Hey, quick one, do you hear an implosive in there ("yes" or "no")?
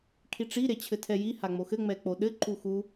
yes